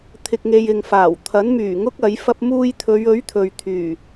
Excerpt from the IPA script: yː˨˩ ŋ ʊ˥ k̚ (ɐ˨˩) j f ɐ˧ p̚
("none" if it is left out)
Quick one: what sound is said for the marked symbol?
ɐ˨˥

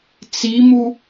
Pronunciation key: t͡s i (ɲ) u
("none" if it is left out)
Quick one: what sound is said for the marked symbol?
m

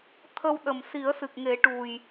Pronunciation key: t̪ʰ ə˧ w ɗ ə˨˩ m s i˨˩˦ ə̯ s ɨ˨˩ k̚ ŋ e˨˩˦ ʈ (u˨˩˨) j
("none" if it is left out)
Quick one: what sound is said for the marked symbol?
u˨˩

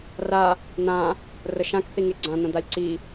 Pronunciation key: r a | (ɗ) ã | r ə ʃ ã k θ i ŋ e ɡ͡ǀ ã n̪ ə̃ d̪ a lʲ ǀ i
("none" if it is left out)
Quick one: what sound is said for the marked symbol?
n̪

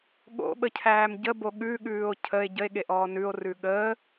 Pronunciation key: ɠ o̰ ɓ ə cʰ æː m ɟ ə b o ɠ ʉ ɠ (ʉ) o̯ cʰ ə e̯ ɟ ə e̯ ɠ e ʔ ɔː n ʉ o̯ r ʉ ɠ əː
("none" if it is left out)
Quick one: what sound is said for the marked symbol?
ʉː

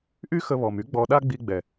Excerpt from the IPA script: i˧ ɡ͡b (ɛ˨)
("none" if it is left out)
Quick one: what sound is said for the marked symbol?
ɛ˨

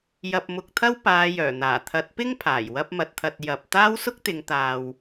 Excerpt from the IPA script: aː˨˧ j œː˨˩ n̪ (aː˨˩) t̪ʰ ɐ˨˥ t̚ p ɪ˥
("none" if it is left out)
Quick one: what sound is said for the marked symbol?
aː˨˩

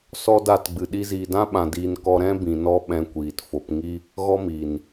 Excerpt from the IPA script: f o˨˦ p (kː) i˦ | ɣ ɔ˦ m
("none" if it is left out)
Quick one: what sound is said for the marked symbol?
ŋ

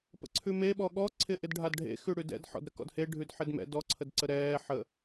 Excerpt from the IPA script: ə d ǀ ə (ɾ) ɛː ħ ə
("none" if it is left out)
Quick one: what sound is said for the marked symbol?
ɾ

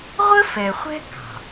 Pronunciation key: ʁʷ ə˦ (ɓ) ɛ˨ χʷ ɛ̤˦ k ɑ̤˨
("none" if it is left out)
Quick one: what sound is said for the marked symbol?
f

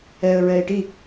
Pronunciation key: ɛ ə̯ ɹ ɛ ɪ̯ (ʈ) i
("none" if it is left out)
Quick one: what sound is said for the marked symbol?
ʈ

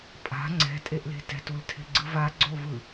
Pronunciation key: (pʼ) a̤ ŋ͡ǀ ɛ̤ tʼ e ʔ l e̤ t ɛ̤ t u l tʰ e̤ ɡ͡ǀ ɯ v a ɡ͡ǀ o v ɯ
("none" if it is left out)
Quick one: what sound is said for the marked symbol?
pʼ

